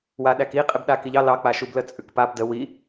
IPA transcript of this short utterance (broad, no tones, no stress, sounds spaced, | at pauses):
w a ɗ æ k i qʼ e b ɗ a k i ʎ ɑ l ɑ k͡p a ʃ u b l ə t͡sʼ ʉ k p a b d ə w i